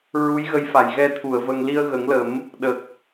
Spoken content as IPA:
ɹ u˧˥ j ɣ ə˧˥ j f a˨˩ j ɣ ɛ˧ t̪ʰ u˨˩˨ ə̯ v ə˧ ŋ l i˧ ə̯ ɣ ə˨˩˦ ŋ l ə˨˩˦ m | ɗ ə˨˩ k̚

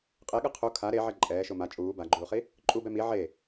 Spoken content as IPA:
qʼ e ɠ ɯ qʰ u kʰ a ɾ e ʕ ɛ ǃʼ ɛː ʃ o m a t͡ʃʼ uː b a ɡ͡ǃ uː χ i | ǃʼ u b ɛ m i ʕ e

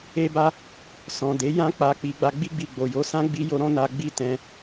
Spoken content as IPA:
e˦ b a˦ | s ɔ̃˨ d e˨˦ j ã˦ k͡p a˧ k͡p i˧ ɡ͡b a˧ ɡ͡b i˦ ɡ͡b i˧ ɡ͡b o˨ j o˨˦ s ã˦ ɡ͡b i˦ j o˦ ɾ ɔ̃˦ n a˧ ɡ͡b i˧ t ɛ̃˧

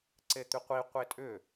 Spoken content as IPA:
ǀ e t̪ y qʷ i qʷ e tʼ ʏ

